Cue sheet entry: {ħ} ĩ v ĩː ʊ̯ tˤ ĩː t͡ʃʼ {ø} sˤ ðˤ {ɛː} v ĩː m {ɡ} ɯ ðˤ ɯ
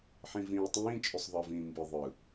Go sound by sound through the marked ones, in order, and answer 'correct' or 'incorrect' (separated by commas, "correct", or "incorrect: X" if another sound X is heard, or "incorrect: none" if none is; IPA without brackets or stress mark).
correct, correct, incorrect: əː, incorrect: b